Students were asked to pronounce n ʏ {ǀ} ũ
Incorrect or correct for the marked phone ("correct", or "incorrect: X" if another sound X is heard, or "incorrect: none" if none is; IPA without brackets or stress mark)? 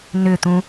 incorrect: t̪